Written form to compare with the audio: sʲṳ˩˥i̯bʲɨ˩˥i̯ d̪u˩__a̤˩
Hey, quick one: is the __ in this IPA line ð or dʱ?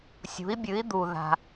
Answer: ð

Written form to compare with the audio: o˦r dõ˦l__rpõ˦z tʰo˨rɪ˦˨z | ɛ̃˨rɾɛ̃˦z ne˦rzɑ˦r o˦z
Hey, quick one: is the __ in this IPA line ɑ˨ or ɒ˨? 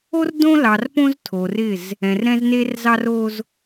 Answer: ɑ˨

